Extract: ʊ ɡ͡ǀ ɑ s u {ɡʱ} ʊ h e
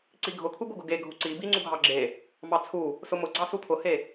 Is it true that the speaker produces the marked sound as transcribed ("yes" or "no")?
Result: no